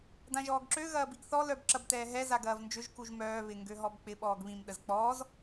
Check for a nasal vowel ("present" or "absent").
present